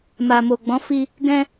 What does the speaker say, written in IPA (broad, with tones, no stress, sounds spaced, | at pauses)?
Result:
m a˨ m o˨ ɡ͡b ɔ̃˨˦ f i˧ | ɡ ɛ̃˧